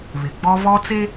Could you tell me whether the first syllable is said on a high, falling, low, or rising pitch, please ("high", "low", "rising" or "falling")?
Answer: low